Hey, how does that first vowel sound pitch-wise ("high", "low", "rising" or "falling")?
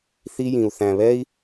high